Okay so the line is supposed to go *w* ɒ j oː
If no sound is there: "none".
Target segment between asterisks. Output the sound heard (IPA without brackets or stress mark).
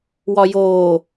w